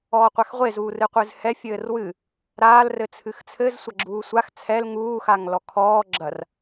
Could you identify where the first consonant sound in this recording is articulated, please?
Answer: uvular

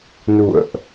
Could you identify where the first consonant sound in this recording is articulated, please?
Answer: alveolar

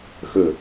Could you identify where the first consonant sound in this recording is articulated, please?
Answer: velar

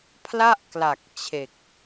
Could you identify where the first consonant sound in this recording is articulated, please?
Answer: labial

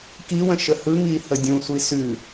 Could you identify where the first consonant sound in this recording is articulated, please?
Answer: velar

